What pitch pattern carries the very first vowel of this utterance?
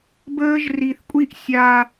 high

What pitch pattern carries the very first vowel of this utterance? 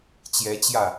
rising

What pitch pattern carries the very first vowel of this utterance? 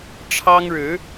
high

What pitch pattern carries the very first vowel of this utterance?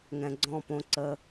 low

